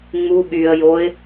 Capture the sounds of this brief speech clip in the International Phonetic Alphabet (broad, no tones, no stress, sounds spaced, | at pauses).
ŋ͡m u ɠ y ə̯ j o ɪ̯